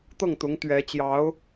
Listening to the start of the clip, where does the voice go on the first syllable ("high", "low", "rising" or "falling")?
falling